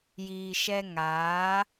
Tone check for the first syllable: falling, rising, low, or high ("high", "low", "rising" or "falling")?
low